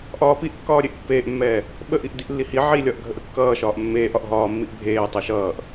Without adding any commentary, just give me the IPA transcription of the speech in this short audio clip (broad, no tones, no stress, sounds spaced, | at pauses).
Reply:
ʔ ɒː p i ʔ kː ɒː ɾʲ e ʔ pː eː ʔ mː ɛː | ɓ ə ʔ i ʔ d i ʔ lː i h i ʕ i lʲ ɒ ʔ ɡʱ ə ʔ ə kː ʌː ʃ ɒː ʔ mː eː ʔ ɒ ʔ ɦ ɒː mː i ʔ bʱ eː tˤ ɯ ʃ ʌː ʔ